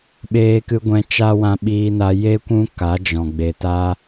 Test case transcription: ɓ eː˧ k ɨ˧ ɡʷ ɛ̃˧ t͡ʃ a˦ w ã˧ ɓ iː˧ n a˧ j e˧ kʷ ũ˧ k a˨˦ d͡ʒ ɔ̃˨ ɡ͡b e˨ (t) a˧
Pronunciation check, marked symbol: correct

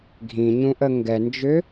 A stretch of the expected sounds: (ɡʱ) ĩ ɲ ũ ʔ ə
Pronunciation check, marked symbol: correct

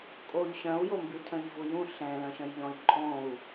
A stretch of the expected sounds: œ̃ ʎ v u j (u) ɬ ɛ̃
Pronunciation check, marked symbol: incorrect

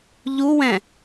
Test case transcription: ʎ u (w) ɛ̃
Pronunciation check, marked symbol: correct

